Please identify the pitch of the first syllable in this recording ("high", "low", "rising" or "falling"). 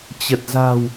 low